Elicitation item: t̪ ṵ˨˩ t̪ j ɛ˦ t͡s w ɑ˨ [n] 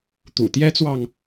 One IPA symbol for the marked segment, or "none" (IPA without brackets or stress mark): ŋ